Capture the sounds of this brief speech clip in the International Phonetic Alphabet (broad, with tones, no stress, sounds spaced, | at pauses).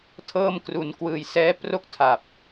tʰ ɤː˥˩ m k r u˧ n k w ɯː˧ j s ɛː˦˥ p r o˥˩ k̚ tʰ a˨˩ p̚